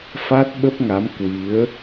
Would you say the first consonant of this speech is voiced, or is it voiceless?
voiceless